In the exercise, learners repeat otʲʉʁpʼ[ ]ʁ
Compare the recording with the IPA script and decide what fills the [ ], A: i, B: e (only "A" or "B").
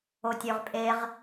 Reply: B